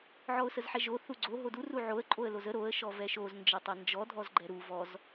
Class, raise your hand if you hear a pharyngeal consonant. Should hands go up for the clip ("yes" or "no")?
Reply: yes